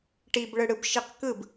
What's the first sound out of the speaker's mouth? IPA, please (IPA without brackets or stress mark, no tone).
ʈ